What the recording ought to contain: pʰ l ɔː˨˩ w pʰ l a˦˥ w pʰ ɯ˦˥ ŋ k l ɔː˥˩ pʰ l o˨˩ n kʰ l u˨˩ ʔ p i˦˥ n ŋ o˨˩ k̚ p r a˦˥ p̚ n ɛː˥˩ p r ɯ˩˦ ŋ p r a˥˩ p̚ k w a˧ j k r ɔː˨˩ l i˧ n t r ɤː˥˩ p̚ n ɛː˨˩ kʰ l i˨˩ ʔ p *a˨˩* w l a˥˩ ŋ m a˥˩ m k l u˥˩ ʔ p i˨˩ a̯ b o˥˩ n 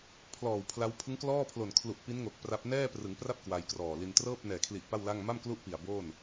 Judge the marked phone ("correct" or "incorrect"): incorrect